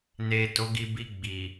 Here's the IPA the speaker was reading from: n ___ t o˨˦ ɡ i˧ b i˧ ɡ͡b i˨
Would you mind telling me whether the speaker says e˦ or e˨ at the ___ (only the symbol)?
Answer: e˨